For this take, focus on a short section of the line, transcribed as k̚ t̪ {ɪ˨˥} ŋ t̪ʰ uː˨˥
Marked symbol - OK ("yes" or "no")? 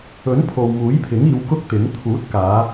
yes